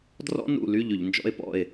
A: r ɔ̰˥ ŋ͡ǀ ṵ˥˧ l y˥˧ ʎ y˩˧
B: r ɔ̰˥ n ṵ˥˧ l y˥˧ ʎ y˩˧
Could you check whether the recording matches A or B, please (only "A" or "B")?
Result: B